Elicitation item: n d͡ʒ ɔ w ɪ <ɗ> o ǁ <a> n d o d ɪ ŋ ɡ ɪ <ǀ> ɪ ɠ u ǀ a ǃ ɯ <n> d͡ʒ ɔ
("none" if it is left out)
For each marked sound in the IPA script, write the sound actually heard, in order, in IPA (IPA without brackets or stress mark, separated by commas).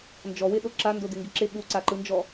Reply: ɗ, a, ǁ, n